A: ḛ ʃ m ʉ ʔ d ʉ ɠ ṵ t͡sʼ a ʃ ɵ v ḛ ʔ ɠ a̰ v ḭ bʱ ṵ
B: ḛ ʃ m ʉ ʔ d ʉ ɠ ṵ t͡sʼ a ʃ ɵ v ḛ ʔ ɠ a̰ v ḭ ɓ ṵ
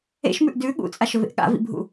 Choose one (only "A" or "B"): A